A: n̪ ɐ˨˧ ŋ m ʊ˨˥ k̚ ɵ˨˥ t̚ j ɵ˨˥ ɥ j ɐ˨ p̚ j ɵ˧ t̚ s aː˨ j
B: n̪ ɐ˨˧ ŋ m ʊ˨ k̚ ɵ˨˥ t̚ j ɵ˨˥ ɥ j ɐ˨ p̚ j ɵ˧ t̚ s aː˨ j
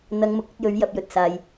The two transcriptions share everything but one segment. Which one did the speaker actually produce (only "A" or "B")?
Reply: B